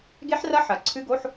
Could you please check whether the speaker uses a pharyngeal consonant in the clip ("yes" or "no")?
yes